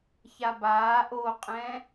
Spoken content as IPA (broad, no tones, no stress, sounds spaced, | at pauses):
ç a b aː ʔ o qʼ ɛ̃